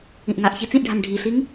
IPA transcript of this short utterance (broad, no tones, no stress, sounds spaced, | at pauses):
ĩ ʔ ŋ a ʔ ç i t͡s ĩ ʔ ɖʱ a ŋ ɖʱ i ɬ i ŋ